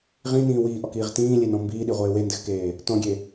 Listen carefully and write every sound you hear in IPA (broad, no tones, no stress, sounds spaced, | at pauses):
ʁ ĩ n ĩː w iː ʔ ɔ k iː ʁ t ĩː lʲ e n ɔ̃ m b iː ɗ i ʁʷ eː w e n d ɘ x k eː | t ɔ̃ ɡʲ e